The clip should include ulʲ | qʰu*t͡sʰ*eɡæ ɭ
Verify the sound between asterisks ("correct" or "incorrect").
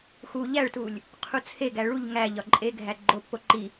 correct